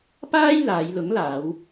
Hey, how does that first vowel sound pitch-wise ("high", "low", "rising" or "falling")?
high